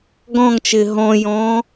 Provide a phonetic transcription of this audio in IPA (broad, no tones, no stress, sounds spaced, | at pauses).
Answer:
ɡ ɔ̃ ŋ t͡ʃ ɪː ɦ ɔ̃ j ɔ̃ː